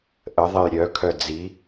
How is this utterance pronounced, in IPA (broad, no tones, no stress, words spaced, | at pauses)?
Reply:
ʔəðˤej ɾʲœkʰœ d͡zi